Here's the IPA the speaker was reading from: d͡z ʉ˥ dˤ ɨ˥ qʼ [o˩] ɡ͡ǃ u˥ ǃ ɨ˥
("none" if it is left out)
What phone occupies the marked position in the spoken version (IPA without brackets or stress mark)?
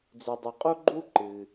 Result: o˥